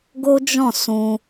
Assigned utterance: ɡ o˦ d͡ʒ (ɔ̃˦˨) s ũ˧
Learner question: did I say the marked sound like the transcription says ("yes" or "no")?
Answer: yes